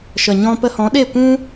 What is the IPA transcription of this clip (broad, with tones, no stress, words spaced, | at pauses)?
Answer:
ʃə˨ɲɔ̃˧ pə˧hɔ̃˨˦ɗe˦˨ kʷũ˦